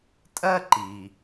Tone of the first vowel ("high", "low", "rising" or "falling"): high